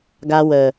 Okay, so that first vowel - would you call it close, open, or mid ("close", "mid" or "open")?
open